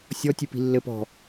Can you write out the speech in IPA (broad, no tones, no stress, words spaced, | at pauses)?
sʲɔ tʲɨpi̤lːɘ pɔ̤